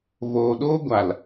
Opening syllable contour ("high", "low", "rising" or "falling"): low